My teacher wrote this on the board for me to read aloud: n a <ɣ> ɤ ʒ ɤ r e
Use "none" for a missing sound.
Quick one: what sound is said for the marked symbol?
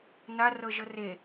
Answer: r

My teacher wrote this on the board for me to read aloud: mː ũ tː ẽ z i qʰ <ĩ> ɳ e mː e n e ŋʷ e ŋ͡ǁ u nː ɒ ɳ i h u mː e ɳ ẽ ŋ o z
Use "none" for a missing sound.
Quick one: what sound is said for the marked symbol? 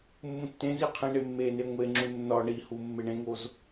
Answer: ĩ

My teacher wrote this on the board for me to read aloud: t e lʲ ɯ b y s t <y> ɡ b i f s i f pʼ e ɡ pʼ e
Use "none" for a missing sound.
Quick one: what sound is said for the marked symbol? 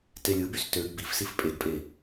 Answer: ø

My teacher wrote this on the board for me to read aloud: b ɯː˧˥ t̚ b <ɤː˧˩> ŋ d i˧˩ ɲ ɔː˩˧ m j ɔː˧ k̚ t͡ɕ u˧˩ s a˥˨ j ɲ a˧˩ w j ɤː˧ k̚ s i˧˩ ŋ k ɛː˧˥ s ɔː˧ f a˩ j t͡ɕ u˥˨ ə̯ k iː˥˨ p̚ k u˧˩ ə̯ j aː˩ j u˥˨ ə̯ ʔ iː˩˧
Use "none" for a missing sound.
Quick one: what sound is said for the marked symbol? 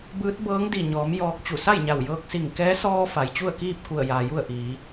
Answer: ɤː˧˥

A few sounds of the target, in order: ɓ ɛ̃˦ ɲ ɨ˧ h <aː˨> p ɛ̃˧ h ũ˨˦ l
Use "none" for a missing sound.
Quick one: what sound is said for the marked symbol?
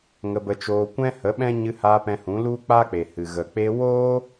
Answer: aː˧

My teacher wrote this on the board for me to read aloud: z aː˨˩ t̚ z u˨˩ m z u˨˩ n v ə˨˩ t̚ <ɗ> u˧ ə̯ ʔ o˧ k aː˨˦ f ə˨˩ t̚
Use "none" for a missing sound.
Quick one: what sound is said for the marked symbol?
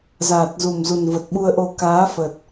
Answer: ɓ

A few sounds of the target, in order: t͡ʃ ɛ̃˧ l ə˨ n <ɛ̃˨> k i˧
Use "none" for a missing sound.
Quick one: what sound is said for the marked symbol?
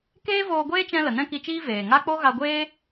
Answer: ɛ̃˦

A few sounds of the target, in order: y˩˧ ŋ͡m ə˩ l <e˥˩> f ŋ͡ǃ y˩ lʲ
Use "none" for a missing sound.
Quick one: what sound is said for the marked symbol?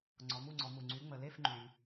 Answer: e˥˩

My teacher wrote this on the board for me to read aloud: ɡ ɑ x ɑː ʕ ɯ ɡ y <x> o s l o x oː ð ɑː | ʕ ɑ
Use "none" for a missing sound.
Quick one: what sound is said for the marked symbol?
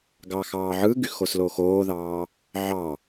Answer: x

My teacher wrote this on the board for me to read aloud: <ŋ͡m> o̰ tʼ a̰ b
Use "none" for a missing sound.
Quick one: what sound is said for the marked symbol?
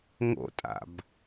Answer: ŋ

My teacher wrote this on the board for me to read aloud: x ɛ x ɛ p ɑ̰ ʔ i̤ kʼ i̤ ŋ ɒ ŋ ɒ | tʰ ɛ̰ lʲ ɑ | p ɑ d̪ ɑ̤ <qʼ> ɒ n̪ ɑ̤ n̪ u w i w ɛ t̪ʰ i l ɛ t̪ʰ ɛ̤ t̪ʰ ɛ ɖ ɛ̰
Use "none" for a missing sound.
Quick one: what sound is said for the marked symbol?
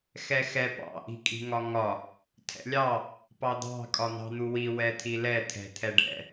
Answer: kʼ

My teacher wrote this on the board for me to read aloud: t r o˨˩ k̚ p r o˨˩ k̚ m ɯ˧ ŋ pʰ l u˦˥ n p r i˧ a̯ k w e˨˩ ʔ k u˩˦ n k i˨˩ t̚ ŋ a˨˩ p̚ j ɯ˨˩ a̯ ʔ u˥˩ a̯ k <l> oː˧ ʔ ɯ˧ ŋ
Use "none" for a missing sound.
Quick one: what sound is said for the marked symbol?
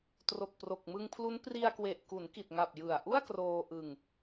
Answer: r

